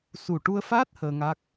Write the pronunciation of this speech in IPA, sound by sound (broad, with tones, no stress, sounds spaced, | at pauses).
s u˨˩ ʈ u˧ ə̯ f aː˦˥ t̚ h əː˧ ŋ a˦˥ k̚